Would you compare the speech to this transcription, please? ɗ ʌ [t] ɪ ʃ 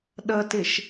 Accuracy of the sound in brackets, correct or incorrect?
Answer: correct